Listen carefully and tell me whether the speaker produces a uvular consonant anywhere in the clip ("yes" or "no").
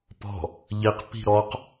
yes